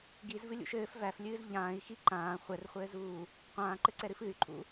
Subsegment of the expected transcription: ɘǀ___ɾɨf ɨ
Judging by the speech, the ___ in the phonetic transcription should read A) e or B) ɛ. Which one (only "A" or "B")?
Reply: B